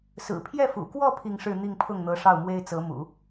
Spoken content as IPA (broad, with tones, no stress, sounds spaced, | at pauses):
s ɹ̩˨˩ pʰ j ɛ˥˩ f ṵ˨˩ k w ɔ˥˧ pʰ i˥˧ ŋ ʂ ɻ̩˥˧ n̪ i˥˧ ŋ pʰ ʊ˥˩ ŋ n̪ ɤ˧˥ ʂ ɑ˥˩ ʊ̯ m w e˥ ɪ̯ t͡s ɤ˧˥ m ṵ˨˩˦